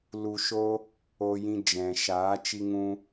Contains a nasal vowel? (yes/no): yes